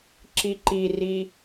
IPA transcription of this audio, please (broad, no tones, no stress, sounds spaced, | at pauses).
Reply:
ǁ i ǃ i r i